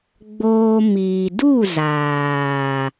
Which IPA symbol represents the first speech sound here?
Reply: ɡ͡b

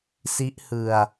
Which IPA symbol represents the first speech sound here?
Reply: s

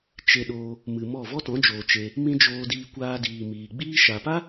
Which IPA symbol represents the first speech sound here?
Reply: t͡ʃ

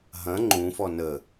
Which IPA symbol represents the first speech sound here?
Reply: ɦ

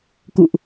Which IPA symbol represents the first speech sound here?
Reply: k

